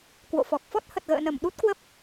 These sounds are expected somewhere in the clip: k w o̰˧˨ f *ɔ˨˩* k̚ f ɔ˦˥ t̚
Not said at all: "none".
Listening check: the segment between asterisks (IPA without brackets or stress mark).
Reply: ɔ˨˩